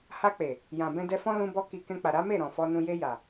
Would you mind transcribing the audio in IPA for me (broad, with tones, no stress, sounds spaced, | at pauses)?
h a˧ k͡p e˨ | j ã˨ b ɛ̃˧ d ɛ˧ f ɔ̃˦ l ũ˦ b ɔ˦ k i˧ k ɛ̃˧ k͡p a˨ ɾ a˨˦ m e˦˨ ɾ ɔ̃˨ f ɔ˧ n ũ˧ j e˧ j a˨